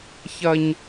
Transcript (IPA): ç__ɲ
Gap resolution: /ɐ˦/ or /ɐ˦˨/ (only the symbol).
ɐ˦